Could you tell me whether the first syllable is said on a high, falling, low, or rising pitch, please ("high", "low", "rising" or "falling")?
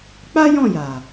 high